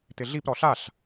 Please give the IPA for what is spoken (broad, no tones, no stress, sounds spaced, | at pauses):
t̪ ɪ ɮ i p ɾ ɔ ɬ a ɬ